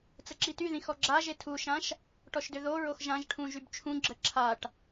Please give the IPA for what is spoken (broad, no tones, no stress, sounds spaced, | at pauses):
t͡s ə ǁ i t y ð ĩ x ɔ ɡ͡ǁ a ʒ e tʰ u ʃ ã ʃ | ʈ ɔ ʃ d ø ð o ɹ o x ʒ ã ʒ ʈʰ ũ ʒ y b t͡ʃʰ ũ ɡ͡ǁ ə ǁʰ a ʈ